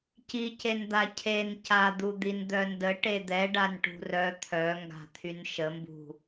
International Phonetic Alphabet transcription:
c i c e n d̪ a cʰ e n c a d̪ u d̪ i n d̪ œ n d ə ʈ e d̪ ɛ ɖ a n ʈ ṳ r œ t̪ʰ œ ŋ ɡ a̤ t̪ʰ y n ʃ ə m b ṳ

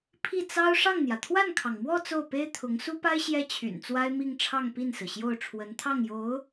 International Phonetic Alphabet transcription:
pʰ i˥˩ t͡s ɑ˥ ʊ̯ ʂ ɑ˥˩ ŋ n̪ j ä˩ t̪ʰ w a˥˩ n kʰ ɑ˩ ŋ m w ɔ˥˧ t͡s o˥˩ ʊ̯ p e˥ ɪ̯ t̪ʰ ʊ˧˥ ŋ s u˥ p a˥ ɪ̯ ɕ j ɛ˥ t͡ɕʰ y̰˨˩ n t͡s w a˥ ɪ̯ m i˥˧ ŋ ʈ͡ʂʰ ɑ˥˧ ŋ p i˥˩ n s ɹ̩˩ ɕ j o˥˩ ʊ̯ ʈ͡ʂʰ w ə˧˥ n t̪ʰ ɑ˥˩ ŋ j o˧˥ ʊ̯

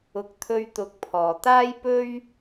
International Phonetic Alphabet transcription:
ʊ˨ k̚ t̪ʰ ɵ˧ ɥ t̪ ʊ˨ k̚ pʰ ɔː˨˩ t̪ aː˥ j p ɵ˥ ɥ

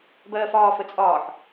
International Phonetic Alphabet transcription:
b ɜː f ɒː f ə t͡sʼ ɒː ħ

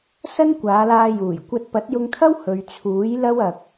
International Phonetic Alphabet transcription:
s ɐ˥ n kʷ aː˨˧ l aː˧ j uː˨˩ j kʷ ɐ˧ t̚ p ɐ˨˥ t̚ j ʊ˧ ŋ t̪ʰ ɐ˥ w h ɵ˨ ɥ t͡sʰ uː˨˥ j l ɐ˥ w ɐ˨ k̚

